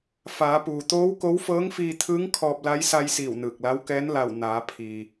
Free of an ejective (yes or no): yes